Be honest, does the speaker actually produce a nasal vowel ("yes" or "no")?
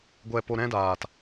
yes